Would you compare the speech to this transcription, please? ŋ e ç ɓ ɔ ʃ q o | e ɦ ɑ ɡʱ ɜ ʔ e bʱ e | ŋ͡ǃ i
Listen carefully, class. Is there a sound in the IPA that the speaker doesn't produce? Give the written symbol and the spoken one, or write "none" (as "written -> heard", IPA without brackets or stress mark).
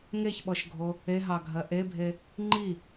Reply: q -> ɡʱ